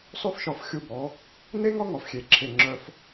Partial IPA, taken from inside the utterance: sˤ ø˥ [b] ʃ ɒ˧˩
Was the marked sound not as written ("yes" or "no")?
yes